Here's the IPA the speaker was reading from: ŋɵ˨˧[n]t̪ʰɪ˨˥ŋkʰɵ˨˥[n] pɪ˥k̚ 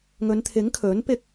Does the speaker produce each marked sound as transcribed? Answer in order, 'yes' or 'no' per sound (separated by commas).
yes, yes